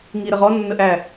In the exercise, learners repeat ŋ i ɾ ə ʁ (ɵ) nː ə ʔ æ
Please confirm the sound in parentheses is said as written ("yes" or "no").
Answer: no